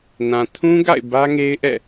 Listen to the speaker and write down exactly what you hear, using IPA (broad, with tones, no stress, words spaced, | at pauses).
nã˨tʰũ˦ɡa̰˦˨ɪ̯ bä˦ŋe˦ɪ̯ʔɛ̰˦˨